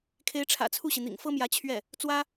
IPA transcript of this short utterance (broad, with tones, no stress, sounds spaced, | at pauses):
kʰ e˧˥ ɪ̯ ʈ͡ʂʰ ä̰˨˩ t͡sʰ u˥˩ ɕ i˩ n̪ ḭ˨˩ ŋ f ɤ˥ m j ä˧˥ t͡ɕʰ ɥ ɛ˥˩ | t͡s w ä˥